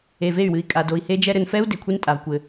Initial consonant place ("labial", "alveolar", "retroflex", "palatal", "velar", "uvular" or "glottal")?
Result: labial